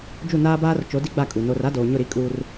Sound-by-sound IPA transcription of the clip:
d͡ʒu˦˨naː˦baː˦r t͡ʃo˨˦ di˦ɡ͡ba˦˨ kʼu˨ no˨r a˦doː˨ɲʊ˦˨ ɾi˦kʼuː˦r

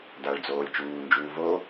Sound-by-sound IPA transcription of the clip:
daɭd͡zoːlʲ t͡ʃuːnd͡ʒuː vo

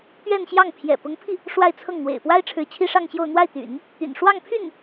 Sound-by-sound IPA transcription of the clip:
t̪ɥɛ˥˧nɕjɑ˥˩ŋ pʰjɛ̰˨˩pʊ˧˥ŋpʰi˧ | ʂwa˥˧ɪ̯t͡sʰɤ˥˩ŋn̪wḛ˨˩ɪ̯ pwa˥ɪ̯ʈ͡ʂʰɻ̩˧˥ t͡ɕʰi˥ʂɑ˥˧ŋɕjo˥˧ʊ̯ n̪wa˥˩ɪ̯t̪y̰˨˩˦n | t̪y̰˨˩n ʂwɑ˥˧ŋpʰy˥˩n

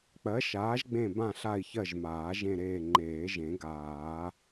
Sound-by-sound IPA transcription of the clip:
k͡pɜ˨˥ʃaː˨˥ʒɡ͡bẽ˦˨bã˦˨ ɬa˦˨i̯çɜ˦˨ʒmaː˨˩˦ ʒẽ˦˨ɾeː˦˨ ŋ͡ǃeː˨˩˦ʒẽ˨˩˦ ɡaː˨˩˦

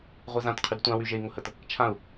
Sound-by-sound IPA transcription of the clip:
ʁʷezãtqʰyd tʷãwyʒei̯ ŋʊhət | t͡ʃʰãu̯

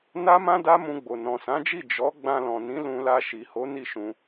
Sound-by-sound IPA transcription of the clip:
na˦mã˦ da˦mũ˧ɡ͡bo˨ nɔ̃˨sã˨˦d͡ʒi˦˨ d͡ʒɔ˨˦ ɡ͡bã˧lɔ̃˨nĩ˨˦ lũ˧la˧ ʃi˨ho˨˦ ni˦˨ʃũ˧

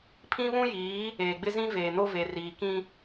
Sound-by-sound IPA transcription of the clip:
pʰĩ˦βũ˦jiː˨˦ | eː˨ɡ͡bɪ˦zĩ˦ veː˨no˦ve˨ riː˨kĩ˦

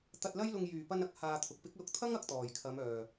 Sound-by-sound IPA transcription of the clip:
t̪ɐ˧t̚lɐ˥jlʊ˧ŋ jyː˨˩pɐ˧nɐ˧k̚ haː˧t̪ʰʊ˨k̚ pɪ˨˥k̚lʊ˧k̚t̪ʰɐ˥ŋ ɐ˨˥k̚t̪ɔː˨˩jkʰɐ˨˧m œː˨˩

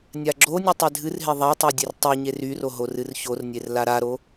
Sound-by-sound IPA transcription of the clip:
nʲaɡ͡ǁonʲɨ tˤedʱɨrɦe ðˤatˤo dʲertˤeɲe ryro ɦorɨrçornʲer laɾaɾo

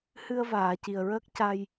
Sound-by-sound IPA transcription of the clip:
hɨ˧ə̯vaː˨˩˨ ci˨˩ə̯ɹəː˦˥k̚ca˧j

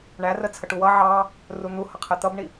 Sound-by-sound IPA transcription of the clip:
ɳærə t͡sʰəʈuwʌ ʕɑ | run̪uhʌqʰɛ t̪ʌbɳi

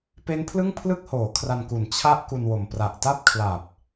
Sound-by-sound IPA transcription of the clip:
pe˦˥npʰlɯ˥˩ŋpʰlɯ˥˩k̚hoː˩˦ kʰra˧nku˨˩n t͡ɕʰa˦˥ʔ ku˧nwo˨˩m pra˨˩ʔta˥˩p̚kʰla˨˩p̚

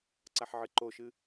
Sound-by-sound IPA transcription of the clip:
ǀaħʕɨǃoʃɨ

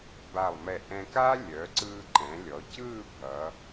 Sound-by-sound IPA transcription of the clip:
ba˧˩lˠmɛ˧˩ʔɛ̃˧kaː˥ lʲœ˩˧ǀɯː˧ǃɛ̃˩˧lʲɔ˩˧ cɯː˥˧bʱʌ˩˧

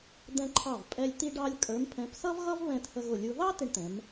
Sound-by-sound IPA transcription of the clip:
d̪ɛ̃˧ǃʰɑ˧˩vpʼɛ˧lʲ t̪i˧ɖɑ˧lʲ kʼə˞˩˧mpʰɛ̃˩˧psʌ˥vɣʌ˥v βɛ̃˧thə˧ɣʊ˧˩lʲu˧ ðɑ˥ tɪ˧ɳt̪ɛ̃˩˧m

